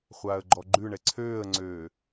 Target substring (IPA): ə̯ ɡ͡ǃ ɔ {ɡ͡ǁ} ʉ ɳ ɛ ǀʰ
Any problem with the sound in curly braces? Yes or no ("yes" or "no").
yes